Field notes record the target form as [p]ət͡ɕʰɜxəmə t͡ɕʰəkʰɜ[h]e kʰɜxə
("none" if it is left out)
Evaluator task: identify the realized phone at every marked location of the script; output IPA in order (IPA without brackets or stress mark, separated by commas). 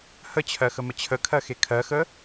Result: h, x